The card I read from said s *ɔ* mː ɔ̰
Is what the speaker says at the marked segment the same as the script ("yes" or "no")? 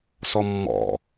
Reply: yes